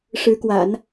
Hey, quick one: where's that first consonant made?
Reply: retroflex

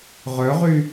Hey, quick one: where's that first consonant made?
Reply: uvula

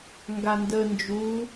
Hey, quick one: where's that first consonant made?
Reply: velum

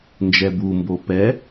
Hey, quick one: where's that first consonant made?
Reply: tongue tip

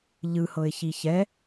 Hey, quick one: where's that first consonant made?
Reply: palate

